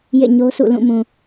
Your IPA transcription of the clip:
j ḛ˦˨ ɲ o˦ s ṵ˦˨ l ũ˦˨ m ũ˨

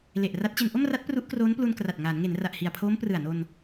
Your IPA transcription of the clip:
l e˨˩ ʔ r a˦˥ t̚ t͡ɕ e˧ n ʔ o˥˩ m r a˦˥ t̚ p r u˦˥ ʔ k r oː˦˥ n p l u˧ n k r a˨˩ t̚ ŋ aː˩˦ n ŋ e˩˦ n r a˨˩ ʔ h i˨˩ a̯ pʰ oː˦˥ m p r ɯ˨˩ a̯ n o˧ n

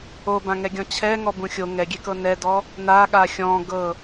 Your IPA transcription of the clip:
o b ã ŋ ɛ ɡʲ ɔ̃ t͡ɕʰ ɛ ŋ ɔ b ũ xʲ o ŋ ɛ ɡʲ e k ɤ n ɛ d ɔ | n a ɠ a xʲ ɔ̃ ɡ ɤ

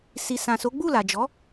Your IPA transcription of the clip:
s i˨ s ã˨ s o˨˦ ɡ͡b u˦˨ l a˨ d͡ʒ ɔ˨˦

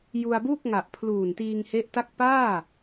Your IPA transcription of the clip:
j u˧ a̯ b uː˥˩ k̚ ŋ a˨˩ ʔ pʰ l uː˨˩ n t iː˧ ŋ h e˦˥ ʔ t a˥˩ k̚ p aː˥˩

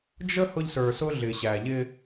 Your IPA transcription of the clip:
d͡ʒ ə˦ h ʊ˦ ʎ s ə˞˨ s ʊ˦ ɮ ɪ˨ ɕ æ˨ ʎ ɪ˦

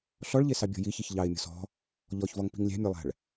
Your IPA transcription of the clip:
ɬ ɔ ɭ ʎ e s ɑ bʲ ɔ̤ j i ç i ç ʎ ɑ ɪ̯ mʲ ɔ̤ s ɔ̤ | ʎ ɔ ç v ɔ ŋ p i̤ ŋ lʲ æ̤ mʲ ə˞ lˠ æ̤ ɭ

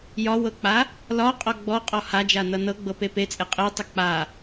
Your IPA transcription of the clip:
j ɒ w ɤ k͡p a | l ɒ qʼ ɔ ɡ͡b ɔ qʼ ɔ h a d͡ʒ a n ʌ n ɤ ɡ͡b ɤ p e p e t͡sʼ e qʼ e tˤ ʌ k͡p a

